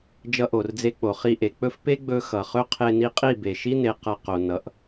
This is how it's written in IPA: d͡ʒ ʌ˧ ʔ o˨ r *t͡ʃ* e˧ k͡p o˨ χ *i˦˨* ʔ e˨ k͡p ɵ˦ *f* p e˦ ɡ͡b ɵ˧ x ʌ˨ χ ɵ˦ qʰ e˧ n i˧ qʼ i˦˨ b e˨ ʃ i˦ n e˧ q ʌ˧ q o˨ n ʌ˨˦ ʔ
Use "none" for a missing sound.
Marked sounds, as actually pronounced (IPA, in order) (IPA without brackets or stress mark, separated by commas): d͡z, i˧, f